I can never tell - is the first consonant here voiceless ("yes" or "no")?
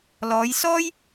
no